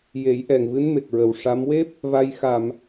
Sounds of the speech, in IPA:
je˨˩˦jʔɛ˨˩ŋvɨ˧˥n me˨˩k̚ɹə˨˩wʂa˧˥m we˦˥p̚ | va˧j xa˨˩˨m

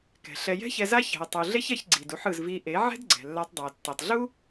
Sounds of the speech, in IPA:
kɛ̤˨ɬɛ˧ jɛ̤˦çɛ˧za˦ çɛ̤˧ɐ̯tˤu˧ ɮe˦çɛ˧çɡ͡ǀi˨du˧ħ ɯ˨zvi˧ʔe˨˦ ʕɛ̤˦dɡ͡ǀɛ̤˨lːa˧tˤdˤu˨ɐ̯ tːɛ˨tˤɮu˦

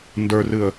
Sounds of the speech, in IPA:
ndə˞rɨə̯

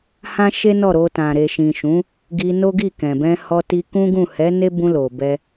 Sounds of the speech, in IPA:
hã˦ʃe˦nɔ˦˨ɾo˧ tã˨ ɾe˨ʃĩ˨ʃũ˨˦ | ɡi˧no˦ɡi˦˨kɛ̃˨ bɛ̃˧hɔ˧ti˧ kũ˦ɡũ˦˨ hɛ˨˦ ne˦bũ˧ lo˨bɛ˧

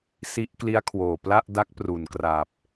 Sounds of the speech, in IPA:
si˦˥ʔkli˦˥a̯kʰwoː˨˩ pla˥˩ʔda˦˥k̚ pru˨˩nkra˨˩p̚

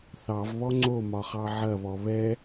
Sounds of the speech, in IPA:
θɑvβɔ ŋ͡ǀomɒχɑ ʕɐβɔ βɛ

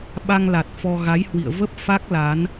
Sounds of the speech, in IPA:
ɓa˧ŋla˨˩t̚ fɔ˧ ɣa˨˦j hwḭ˧˨ə̯ və˦˥p̚ fa˦˥k̚ la˨˦n

